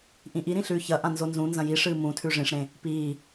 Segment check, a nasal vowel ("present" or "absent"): present